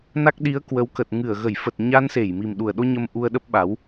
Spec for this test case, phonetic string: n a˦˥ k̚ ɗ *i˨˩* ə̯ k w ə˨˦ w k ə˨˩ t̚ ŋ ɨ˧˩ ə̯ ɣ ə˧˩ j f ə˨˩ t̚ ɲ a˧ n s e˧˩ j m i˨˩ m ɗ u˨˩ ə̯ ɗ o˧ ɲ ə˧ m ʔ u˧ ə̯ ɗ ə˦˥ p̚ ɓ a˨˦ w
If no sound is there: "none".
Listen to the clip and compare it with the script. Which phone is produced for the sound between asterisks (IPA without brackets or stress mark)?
i˨˦